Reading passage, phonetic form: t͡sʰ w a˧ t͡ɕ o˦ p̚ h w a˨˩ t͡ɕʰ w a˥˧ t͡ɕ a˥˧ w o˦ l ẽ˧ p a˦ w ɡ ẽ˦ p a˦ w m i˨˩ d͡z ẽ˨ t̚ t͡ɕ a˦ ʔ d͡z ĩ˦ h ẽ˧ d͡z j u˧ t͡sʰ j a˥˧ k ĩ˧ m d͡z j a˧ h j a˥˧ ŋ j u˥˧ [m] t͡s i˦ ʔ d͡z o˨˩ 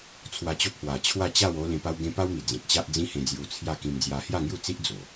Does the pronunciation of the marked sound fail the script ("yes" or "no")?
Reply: yes